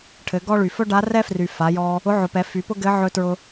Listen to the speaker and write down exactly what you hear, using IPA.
ʈʰ ɘ˩˧ ɡ ɔ˥ ɭ y˩ f ɵ˥ ɖ a˧˥ r ɛ˥ f r y˩ f a˩˧ j ɔ˧ | ʊ˧˥ ʕ ʊ˩˧ p ɛ˩˧ f y˩˧ p ʊ˥ ɡ ɘ˧˥ ʕ ɵ˧ t ɹ ʊ˧

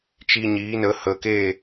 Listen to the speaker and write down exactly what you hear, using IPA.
t͡ʃ i˧ ɲ iː˨˦ n ə˨˦ h ə˨ k e˦˨

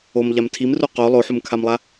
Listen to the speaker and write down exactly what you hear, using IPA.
o m ʎ a m tʰ i m r u q o lˠ o ħ u m kʰ a m lˠ a

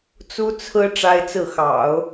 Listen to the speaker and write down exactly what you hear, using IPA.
t͡s u˥ t͡sʰ ɹ̩˥ ʈ͡ʂ a˥ ɪ̯ t͡s ɹ̩˥˩ x ɑ̰˨˩˦ ʊ̯

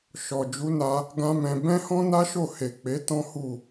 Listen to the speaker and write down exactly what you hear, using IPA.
ʃ ɔ˨ d͡ʒ u˨˦ n a˧ | ɡ ã˦ m ɛ̃˧ b ɛ̃˦ h ɔ̃˦ n a˦ ʃ o˦˨ h e˨ k͡p e˨˦ t ɔ̃˦ h u˦˨

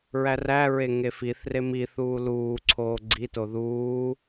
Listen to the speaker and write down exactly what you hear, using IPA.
ɹ æ r æ ɹ e ŋ e f i θ r e m i θ uː l uː ǀʰ oː ɡ͡ǀ i t o ð uː

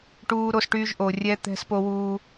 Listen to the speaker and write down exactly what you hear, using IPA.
ʈ uː˧ ɾ o˧ s ʈ yː˧ ʒ ʔ o˨ rʲ ɛ˧ t̪ ɛ̤˧ s p o˧ w uː˧

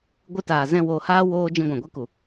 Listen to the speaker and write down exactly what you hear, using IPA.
ɡʷ ɨ˧ t aː˨ z ɛ̃˦˨ w oː˧ h aː˦ w oː˧ d͡ʒ ĩ˧ ɡʷ ã˨ ɡʷ e˦ k u˨

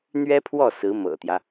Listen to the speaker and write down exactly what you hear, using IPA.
n̪ ɥ ɛ˥ pʰ w ɔ˥˩ s ɹ̩˧˥ m ɤ̰˨˩ t̪ j ä˦

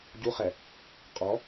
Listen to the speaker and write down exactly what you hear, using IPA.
ɟ u χ ɛ | qʼ ɔ

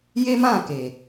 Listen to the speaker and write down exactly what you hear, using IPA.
j e˦ m ã˦˨ k e˨

